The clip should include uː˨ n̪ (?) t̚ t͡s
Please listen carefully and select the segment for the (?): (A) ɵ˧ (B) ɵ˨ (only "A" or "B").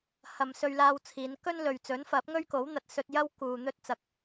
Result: A